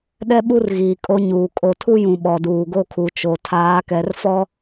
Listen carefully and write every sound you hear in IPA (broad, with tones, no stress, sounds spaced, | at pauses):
ɗ ɛ˦ ɓ u˦ r ɣ iː˨ kʼ o˦ ɲ uː˨ kʼ o˨ tʰ u˦ j ũ˨ ɓ ɔ˨ d uː˨ ɡ o˦ kʰ u˨ t͡ʃ o˨ tʰ aː˨˦ k ɛ˨˦ r f ɔ˦